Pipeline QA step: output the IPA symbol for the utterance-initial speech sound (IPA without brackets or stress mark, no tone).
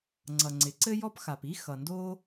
ŋ͡ǀ